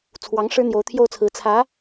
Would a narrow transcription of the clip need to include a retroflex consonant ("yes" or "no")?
yes